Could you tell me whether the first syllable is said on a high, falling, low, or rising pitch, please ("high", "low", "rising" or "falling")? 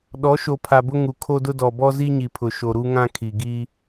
rising